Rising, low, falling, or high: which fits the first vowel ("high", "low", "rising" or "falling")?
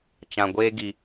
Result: low